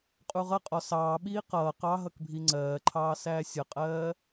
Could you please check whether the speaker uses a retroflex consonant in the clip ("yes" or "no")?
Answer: no